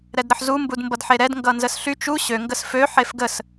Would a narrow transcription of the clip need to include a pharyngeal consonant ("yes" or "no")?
yes